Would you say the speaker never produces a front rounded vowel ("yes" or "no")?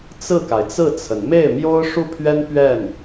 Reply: yes